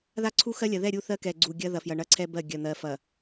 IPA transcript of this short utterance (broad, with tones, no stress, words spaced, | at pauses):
ða˦ǀʰu˦xɜ˦lʲɐ˨ ðɛ˦˨ɾʲu˦˨ θɜ˦kɛ˨ɡ͡ǀu˨ ɡʲɐ˦ ðɐ˨fjɐ˨ ɳɐ˦ǀʰɛ˦bɜ˦˨ ɡʲɐ˨n̪ɜ˨ fɐ˨